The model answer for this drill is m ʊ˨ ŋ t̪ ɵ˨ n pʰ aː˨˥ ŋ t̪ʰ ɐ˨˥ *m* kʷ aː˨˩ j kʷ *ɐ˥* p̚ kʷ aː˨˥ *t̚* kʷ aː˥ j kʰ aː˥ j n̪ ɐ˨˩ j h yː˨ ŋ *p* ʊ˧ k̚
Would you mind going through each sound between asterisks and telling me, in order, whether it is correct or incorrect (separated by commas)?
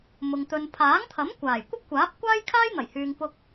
correct, correct, incorrect, correct